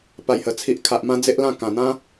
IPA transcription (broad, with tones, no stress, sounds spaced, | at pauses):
p a˨˩ j h ə˨˩ t͡sʰ i˨ ʔ kʰ a˨ ʔ m ã˧ d͡z e˦ ʔ l ã˥˧ k ã˨˩ n̪ ã˦